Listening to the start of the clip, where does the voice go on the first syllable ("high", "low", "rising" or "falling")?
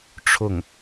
falling